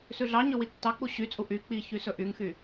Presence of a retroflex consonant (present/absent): absent